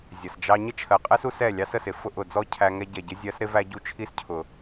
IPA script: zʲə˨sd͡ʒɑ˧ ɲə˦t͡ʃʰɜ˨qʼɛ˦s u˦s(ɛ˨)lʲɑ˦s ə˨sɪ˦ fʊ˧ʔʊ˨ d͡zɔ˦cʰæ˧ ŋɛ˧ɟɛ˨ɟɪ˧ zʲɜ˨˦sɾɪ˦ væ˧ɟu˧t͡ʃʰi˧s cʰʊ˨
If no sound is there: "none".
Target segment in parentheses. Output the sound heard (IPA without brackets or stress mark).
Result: ɛ˦˨